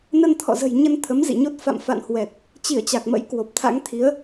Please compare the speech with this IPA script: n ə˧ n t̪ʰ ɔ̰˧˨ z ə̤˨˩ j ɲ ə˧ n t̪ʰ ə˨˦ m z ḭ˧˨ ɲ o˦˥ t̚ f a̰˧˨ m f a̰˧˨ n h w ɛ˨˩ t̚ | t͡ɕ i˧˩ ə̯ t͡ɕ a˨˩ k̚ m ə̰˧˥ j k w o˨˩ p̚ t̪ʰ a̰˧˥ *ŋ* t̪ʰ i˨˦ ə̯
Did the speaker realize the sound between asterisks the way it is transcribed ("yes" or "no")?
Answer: yes